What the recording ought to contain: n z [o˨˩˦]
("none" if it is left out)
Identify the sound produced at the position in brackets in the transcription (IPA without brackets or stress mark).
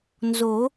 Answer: o˨˩˦